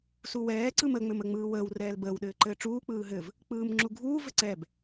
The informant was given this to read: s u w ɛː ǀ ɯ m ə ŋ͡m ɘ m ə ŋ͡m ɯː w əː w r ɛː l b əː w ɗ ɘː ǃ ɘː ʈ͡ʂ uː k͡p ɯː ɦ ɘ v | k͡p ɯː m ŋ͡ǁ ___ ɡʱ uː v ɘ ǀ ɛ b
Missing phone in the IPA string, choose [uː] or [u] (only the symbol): u